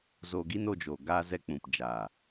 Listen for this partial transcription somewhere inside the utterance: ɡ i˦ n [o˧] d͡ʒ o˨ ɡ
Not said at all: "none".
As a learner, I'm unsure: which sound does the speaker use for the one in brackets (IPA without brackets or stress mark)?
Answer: o˧